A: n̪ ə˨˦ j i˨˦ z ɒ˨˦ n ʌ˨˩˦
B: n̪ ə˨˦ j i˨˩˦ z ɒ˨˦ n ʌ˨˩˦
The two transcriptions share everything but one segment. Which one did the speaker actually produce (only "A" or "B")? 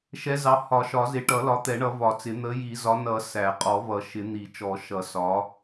B